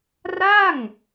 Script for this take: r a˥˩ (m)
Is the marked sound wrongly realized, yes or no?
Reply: yes